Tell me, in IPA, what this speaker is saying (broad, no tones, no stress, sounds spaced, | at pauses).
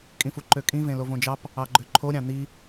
kʼ ĩ f u ǃ ø kʼ ĩ v ẽ l o v õ d͡ʒ ɑ p | ɑ ɡ͡ǃ ø ǃʰ o ɾʲ ɑ̃ n̪ i